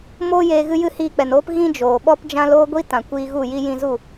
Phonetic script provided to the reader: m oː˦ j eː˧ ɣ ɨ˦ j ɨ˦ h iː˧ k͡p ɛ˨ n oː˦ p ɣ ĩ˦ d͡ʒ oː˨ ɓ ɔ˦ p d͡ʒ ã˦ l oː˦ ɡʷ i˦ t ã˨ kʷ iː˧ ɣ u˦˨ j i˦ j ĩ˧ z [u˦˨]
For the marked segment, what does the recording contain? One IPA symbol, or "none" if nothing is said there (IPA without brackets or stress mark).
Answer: u˦˨